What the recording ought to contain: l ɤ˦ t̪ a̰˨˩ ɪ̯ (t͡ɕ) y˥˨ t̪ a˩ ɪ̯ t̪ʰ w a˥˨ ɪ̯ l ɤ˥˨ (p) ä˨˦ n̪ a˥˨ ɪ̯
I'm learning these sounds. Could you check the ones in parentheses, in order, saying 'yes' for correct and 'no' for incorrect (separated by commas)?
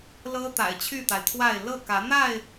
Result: no, no